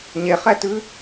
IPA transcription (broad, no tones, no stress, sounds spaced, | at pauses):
ɲ e χ ɛ t ʉ